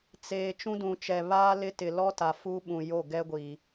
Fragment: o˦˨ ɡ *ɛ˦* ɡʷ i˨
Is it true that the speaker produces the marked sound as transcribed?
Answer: yes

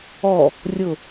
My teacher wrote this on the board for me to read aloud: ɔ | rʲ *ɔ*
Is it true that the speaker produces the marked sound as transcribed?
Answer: no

